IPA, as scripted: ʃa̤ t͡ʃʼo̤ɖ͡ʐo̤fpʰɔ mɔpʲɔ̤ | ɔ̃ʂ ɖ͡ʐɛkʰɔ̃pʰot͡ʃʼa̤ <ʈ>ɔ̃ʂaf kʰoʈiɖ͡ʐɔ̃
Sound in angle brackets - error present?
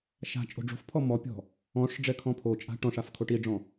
no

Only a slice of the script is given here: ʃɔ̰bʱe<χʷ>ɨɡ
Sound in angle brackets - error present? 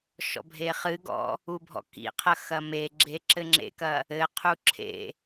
yes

